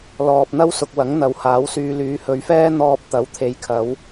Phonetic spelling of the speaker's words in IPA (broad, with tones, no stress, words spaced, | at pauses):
lɔː˨p̚n̪ɐ˥wsʊ˨k̚ wɐ˨˥ŋn̪ɐ˨˧whaː˨˥wsyː˧ lyː˨˧hɵ˨˧ɥfɛː˥ n̪ɔː˧p̚t̪ɐ˨˥w t̪ʰe˨˧jkʰɐ˨˧w